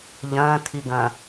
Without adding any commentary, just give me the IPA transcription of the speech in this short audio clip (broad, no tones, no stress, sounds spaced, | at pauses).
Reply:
ʎ ɐ̃ː tʰ i ɡ ɐ̃